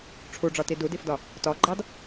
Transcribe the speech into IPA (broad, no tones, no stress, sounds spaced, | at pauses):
ʈ͡ʂʰ u ɖ͡ʐ ɒ t i d u d i f d ɒ | t ɒ ɡ͡ǃ ɑ d